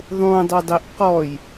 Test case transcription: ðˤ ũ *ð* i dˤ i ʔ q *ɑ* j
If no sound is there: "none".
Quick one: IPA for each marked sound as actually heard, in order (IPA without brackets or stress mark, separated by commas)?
dˤ, ɔ